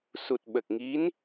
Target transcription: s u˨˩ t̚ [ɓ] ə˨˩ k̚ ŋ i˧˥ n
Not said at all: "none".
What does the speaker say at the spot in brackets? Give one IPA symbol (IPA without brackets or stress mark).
ɓ